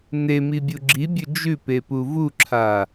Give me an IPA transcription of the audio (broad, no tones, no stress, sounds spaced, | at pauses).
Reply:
n e m i bʲ u ɡ͡ǁ i bʲ ɵ d͡ʒ ʉ p e p u v u ǁʰ a